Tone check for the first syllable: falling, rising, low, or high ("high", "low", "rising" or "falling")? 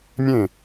falling